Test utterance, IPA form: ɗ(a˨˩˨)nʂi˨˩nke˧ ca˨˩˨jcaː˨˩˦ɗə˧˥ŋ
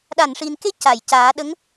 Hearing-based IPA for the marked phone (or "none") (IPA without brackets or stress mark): a˨˩˨